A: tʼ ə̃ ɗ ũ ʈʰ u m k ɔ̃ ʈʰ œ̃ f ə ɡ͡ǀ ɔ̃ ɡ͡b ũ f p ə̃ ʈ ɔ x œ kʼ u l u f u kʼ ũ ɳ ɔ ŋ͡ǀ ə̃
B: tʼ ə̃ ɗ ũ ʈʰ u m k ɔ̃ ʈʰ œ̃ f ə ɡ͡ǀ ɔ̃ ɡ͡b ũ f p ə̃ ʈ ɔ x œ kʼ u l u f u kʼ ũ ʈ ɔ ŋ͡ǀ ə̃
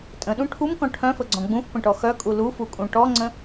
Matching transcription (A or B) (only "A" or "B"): B